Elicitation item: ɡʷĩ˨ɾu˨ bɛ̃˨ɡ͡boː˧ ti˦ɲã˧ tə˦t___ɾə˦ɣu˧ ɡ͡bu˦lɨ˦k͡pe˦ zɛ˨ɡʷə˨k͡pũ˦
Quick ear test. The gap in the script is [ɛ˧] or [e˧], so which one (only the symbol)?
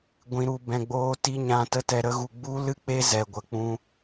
ɛ˧